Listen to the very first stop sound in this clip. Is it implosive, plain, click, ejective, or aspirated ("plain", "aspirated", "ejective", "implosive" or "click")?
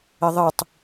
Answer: plain